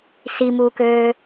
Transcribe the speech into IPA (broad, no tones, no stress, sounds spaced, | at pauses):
s i m uː k øː